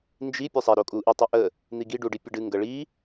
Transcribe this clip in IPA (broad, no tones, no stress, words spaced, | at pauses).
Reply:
nd͡ʒi pʲusˤɛ ɾokʼuʔi tˤuʔə | n̪iɡi ɖuɖipʲəɖɨ ŋɡəɭi